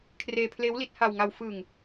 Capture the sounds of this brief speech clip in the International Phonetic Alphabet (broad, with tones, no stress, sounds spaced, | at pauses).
kʰ r eː˧ pʰ l eː˦˥ w l i˦˥ t̚ h a˧ w ŋ a˧ w f ɯː˧ ŋ